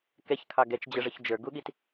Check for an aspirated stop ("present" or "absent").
present